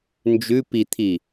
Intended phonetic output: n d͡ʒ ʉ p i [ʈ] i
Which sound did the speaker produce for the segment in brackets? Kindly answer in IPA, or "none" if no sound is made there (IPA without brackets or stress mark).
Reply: t̪ʰ